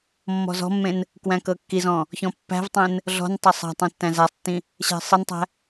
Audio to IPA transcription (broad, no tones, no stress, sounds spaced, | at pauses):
mː ɔ̤ z ɔ̤ mː ẽ n | k w æ̃ k ɤ kː i z ɔ̃ | ç ɔ̃ pː æ̤ v tˤ ẽ n | ɮ ɔ̤ n tˤ ɐ sˤ æ̤ tˤ ĩ tː æ̃ z æ sˤ tː ĩ | ɕ æ̤ sˤ ɨ n tˤ æ̤